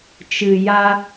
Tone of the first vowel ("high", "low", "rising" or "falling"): low